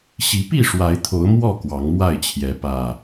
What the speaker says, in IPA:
ɕ i˨˦ p i˥˨ ʂ w a˨˦ ɪ̯ t̪ʰ o˨˦ ʊ̯ m w ɔ˥˨ k w ɑ˨˦ ŋ m w a˥˨ ɪ̯ t͡ɕʰ j ɛ˨˦ p ä˨˩

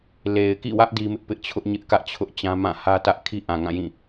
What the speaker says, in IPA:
l e˨ ɪ̯ k ḭ˦˨ w ä˦ ʔ d i˦ m ɪ˦ ʔ p ɪ˦ ʔ t͡ɕʰ ʊ˦ ʔ ɲ ɪ˦ ʔ k ä˦ ʔ t͡ɕʰ ʊ˦ ʔ t͡ɕ ã˦ m ã˦˨ h ä˦ t ä˦ ʔ kʰ i˦ ʔ ã˨ ŋ ã˦˨ j ĩ˦˨

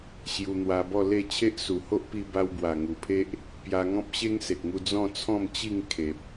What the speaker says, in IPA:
ɕ j u˧ n̪ w a˧ b ɔ˥˧ l e˥˧ t͡ɕʰ e˦ ʔ s u˨˩ h o˦ ʔ p i˧ b a˧ w b w a˨˩ ŋ u˨˩ pʰ e˦ ʔ | p j a˧ ŋ ɔ̃˦ p̚ ɕ e˦ ŋ s e˨ k̚ ŋ u˧ d͡z ɔ̃˥˧ t͡sʰ ɔ̃˥˧ m t͡ɕ i˥˧ ŋ kʰ e˨ p̚

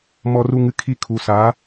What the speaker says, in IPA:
m ɔ˧ r u˧ ŋ ɨ˧ kʰ i˦˨ kʰ u˨ s a˨˦

